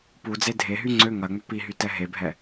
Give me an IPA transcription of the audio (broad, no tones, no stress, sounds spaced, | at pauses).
p u d͡z e dʱ e ɦ y ŋ͡ǀ ø ŋ ɐ ŋ͡m ʏ p i ɦ y t ɛ ɦ e bʱ ɛ